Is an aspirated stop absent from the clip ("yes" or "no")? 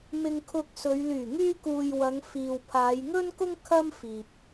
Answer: no